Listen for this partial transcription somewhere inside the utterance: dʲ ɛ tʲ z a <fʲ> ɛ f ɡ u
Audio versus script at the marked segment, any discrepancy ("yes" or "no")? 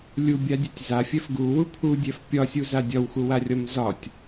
no